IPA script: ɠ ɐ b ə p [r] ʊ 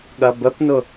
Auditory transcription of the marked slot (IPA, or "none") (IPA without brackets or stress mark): n